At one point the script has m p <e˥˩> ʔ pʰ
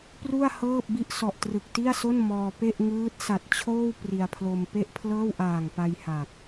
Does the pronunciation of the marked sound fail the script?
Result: no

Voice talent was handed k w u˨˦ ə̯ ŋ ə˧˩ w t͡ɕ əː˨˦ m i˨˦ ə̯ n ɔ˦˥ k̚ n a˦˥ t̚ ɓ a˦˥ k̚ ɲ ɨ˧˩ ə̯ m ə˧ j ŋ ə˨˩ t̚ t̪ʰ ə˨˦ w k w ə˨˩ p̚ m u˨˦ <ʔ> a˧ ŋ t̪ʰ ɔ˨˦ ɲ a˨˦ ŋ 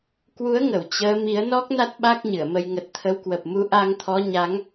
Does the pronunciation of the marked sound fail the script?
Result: no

